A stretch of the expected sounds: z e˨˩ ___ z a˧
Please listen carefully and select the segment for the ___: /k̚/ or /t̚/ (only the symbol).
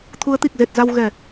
t̚